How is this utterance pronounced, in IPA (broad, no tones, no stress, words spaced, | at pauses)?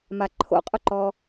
maǃʰo̰qʼʊǃɔ